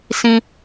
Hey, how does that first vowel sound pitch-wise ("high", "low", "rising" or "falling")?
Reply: high